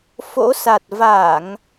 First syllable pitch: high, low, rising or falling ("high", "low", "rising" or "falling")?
rising